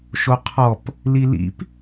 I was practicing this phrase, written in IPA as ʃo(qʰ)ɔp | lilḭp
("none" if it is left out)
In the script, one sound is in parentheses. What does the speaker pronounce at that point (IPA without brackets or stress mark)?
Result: qʰ